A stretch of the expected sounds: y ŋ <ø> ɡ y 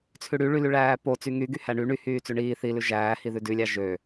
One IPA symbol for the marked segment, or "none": y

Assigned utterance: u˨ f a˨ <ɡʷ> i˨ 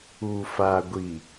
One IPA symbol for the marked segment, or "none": ɡʷ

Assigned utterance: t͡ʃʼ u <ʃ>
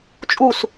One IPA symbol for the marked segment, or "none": s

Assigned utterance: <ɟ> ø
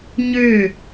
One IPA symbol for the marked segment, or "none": ɲ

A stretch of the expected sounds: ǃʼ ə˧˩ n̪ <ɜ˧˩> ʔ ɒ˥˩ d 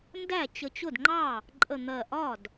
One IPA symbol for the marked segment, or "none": ɜ˧˩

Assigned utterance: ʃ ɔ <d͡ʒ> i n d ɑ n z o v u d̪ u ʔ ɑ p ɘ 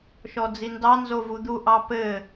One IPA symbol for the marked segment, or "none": d͡z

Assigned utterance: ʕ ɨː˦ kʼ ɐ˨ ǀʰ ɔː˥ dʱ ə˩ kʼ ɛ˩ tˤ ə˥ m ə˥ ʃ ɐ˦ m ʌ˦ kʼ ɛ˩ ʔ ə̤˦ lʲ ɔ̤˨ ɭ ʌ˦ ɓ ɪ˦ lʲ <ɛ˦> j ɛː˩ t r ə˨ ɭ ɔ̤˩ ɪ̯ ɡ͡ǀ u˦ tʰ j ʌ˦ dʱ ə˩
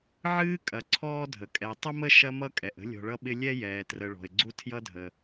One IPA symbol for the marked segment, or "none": ɛ˥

